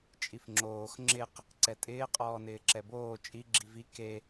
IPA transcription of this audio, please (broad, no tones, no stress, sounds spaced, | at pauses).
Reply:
t͡ʃʼ i f ŋ͡ǁ oː x ŋ͡ǁ ɪ q | ǀ ɛ tʼ ɪː qʼ ɔː n ɪː ǁ ɛ b oː t͡ʃʼ i ɡ͡ǁ i v i k e